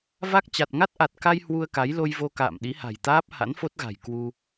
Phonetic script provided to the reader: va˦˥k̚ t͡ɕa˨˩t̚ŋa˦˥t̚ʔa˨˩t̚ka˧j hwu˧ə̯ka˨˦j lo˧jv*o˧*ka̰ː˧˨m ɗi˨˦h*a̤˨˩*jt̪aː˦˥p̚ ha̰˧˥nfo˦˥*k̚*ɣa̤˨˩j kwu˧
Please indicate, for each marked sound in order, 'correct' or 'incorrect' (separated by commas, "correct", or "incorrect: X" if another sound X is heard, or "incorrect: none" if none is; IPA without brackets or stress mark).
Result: correct, correct, incorrect: t̚